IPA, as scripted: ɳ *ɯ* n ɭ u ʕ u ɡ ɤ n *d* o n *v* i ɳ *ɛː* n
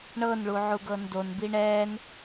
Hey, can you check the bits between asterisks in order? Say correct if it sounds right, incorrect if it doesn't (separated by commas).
incorrect, correct, incorrect, correct